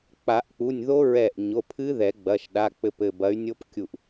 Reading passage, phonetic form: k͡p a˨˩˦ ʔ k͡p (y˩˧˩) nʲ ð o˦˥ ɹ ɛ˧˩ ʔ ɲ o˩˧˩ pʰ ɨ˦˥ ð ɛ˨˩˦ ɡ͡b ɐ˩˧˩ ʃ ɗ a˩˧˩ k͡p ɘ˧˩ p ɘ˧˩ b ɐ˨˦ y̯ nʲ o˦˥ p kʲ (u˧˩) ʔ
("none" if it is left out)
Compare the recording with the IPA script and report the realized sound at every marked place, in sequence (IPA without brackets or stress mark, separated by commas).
u˩˧˩, u˧˩